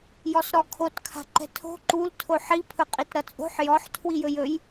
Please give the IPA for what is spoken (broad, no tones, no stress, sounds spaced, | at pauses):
j ɔ s ɾ ɔ kʰ o t kʰ a̤ ǃ ɛ̤ tʰ o̤ ǃ u l tʰ o ħ i pʰ ɵ qʼ i t ɾ ʌ t͡sʼ o̤ ħ j ɔ ħ tʰ w i j ɵ j ɵ j